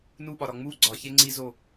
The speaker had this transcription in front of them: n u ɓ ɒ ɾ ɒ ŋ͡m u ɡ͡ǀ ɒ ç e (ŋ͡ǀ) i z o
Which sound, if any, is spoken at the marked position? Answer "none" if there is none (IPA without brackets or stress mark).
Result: ŋ͡ǀ